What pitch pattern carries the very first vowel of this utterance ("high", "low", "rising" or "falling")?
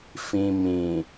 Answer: low